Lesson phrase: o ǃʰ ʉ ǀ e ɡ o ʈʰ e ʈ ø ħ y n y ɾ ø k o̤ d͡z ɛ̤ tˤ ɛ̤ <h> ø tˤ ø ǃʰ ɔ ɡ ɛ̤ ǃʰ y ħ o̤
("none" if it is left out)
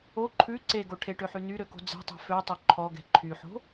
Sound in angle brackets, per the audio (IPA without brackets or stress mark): f